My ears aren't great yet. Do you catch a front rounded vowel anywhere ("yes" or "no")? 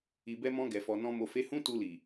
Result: no